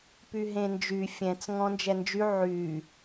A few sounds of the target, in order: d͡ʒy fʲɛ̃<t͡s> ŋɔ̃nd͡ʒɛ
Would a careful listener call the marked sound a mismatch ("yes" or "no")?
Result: no